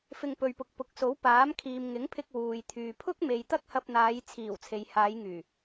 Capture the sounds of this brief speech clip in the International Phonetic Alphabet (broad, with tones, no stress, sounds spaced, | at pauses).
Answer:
f ɪ˧ ŋ p ɵ˨ ɥ p ʊ˨ k̚ p ʊ˨˥ k̚ s o˨˥ w p aː˨˥ m kʰ iː˨ m ŋ ɪ˨˥ ŋ pʰ ɪ˧ k̚ w uː˨ j t̪ʰ yː˨ pʰ ʊ˥ k̚ m e˨ j t̪ ɐ˥ k̚ h ɐ˧ p̚ n̪ aː˨˧ j t͡sʰ iː˨˩ w t͡sʰ e˨ j h aː˨˧ j ŋ yː˨˩